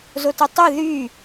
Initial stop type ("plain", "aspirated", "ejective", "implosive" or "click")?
plain